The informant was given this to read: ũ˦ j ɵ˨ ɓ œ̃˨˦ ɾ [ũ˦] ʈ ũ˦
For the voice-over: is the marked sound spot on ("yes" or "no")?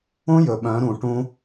no